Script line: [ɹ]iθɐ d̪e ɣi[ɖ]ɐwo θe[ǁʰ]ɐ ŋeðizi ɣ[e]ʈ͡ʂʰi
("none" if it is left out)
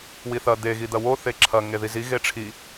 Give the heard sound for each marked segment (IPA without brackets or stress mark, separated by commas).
w, d̪, ǁʰ, e